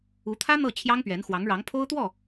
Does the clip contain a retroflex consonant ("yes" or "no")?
yes